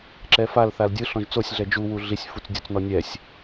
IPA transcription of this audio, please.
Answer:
ǁ ɛ f a l θ a l dʲ ɯ ɬ ɔ̃ ʒ t͡s o sʲ ɮ ɛ d͡ʒ u w u ɮ i sʲ f u t͡s dʲ o t͡s n ɔ nʲ ɛ sʲ

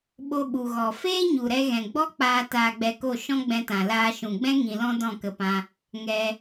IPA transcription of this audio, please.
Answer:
ɓ o˧ ɓ u˨ ɣ ɔ˨ f eː˦ ɲ u˨ ɾ ɛ˧ ɣ ɛ̃˨ ɡ͡b ɔ˦ k͡p aː˧ t aː˧ ɡ͡b ɛ˧ k o˦˨ ʃ ɔ̃˦ ɡ͡b ɛ̃˧ t ã˨ l aː˧ ʃ ũ˨ ɡ͡b ɛ̃˦ ŋ ĩ˧ l ɔ̃˦ d ɔ̃˦˨ k ə˧ p ã˧ | ŋ ɛ˧

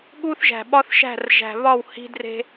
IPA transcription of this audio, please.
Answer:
ɠ u˦ θ ʒ æ̤˨ ɓ ɒ˦ θ ʃ æ̤˦˨ r ʒ æ̤˨ β ɒ˦˨ w h i̤˦ d r e̤˦

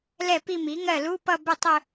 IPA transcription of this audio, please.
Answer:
l ɛ˥˩ p i˥˧ m i˩˥ ŋ ɜ˥˩ l u˧˥˧ p ʌ˥˧ b ʊ˥˩ tˤ ʊ˥˧

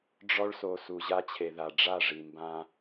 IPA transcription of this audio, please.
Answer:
ɖ͡ʐ ɔ˦ ɭ s o˨ s u˨ ʑ a˦ t͡ɕʰ e˨ ð a˨ ɖ͡ʐ a˦˨ ʐ i˨ m b ã˦

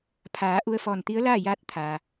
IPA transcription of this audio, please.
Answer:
pʰ aː˩˧ ʔ u˧ ə̯ f ɔː˧˩ n t̪ i˧˥ ə̯ l aː˥˨ j aː˧˥ t̚ t̪ʰ a˩

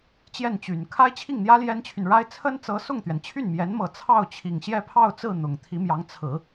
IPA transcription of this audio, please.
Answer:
t͡ɕ j ɛ˥˩ n t͡ɕ y˨˩ n kʰ a˥ ɪ̯ t͡ɕʰ i˥˩ ŋ n̪ j ä˥ l j ɛ˥ n t͡ɕʰ y˨ n ɻ a˥ ɪ̯ t͡sʰ ə˥ n t͡s ɤ˧˥ s ʊ˥˩ ŋ t̪ ɥ ɛ˩ n t͡ɕʰ y˥˩ n m j ɛ˧˥ n m ɤ˨˩ t͡sʰ ɑ˥˩ ʊ̯ t͡ɕʰ i˨˩ ŋ ɕ j ɛ˥˧ pʰ ɑ˥˧ ʊ̯ t͡s ɹ̩˥˩ n̪ ʊ˨˩ ŋ t̪ʰ i˧˥ m j ɑ˧˥ ŋ t͡sʰ ɹ̩˨˩˦

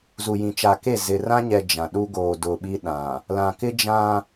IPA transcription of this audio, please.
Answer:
z u˨ j ĩ˨ t͡ʃ a˨ k e˦˨ z ɪ˨ r ã˦ ɲ ɛ˨ d͡ʒ ã˨ ɗ u˦ ɡ oː˨ d ʊ˨ ɓ i˦ ɗ ã˨ | l ã˨ k ɪ˦ d͡ʒ ã˦

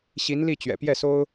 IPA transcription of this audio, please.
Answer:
ɕ i˧˥ n l i˥˩ t͡ɕ ɥ ɛ̰˨˩ p j ɛ˥˩ s o˥ ʊ̯

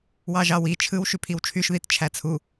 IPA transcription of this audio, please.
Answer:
w ɑ ʒ ɑ w i t͡ʃʰ ɯ w ʃ y pʰ i w t͡ʃʰ y ʃ ð i t t͡ʃʰ æ t͡sʰ u

